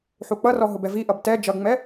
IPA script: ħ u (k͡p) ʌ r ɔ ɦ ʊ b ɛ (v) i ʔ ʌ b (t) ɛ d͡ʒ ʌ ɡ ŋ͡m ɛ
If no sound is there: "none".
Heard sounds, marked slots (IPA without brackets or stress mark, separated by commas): k͡p, v, t